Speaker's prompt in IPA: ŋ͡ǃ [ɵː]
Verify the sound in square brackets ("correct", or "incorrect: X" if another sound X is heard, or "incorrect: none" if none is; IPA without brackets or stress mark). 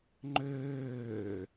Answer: incorrect: øː